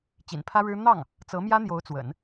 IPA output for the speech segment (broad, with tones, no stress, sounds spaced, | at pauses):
t͡ɕ ḭ˨˩ n pʰ ä˥ ɻ ɻ̩˥ n̪ ɑ˥˩ ŋ | t͡s ɤ˧˥ m j ä˥ n̪ j o˧˥ ʊ̯ t͡s w ə̰˨˩˦ n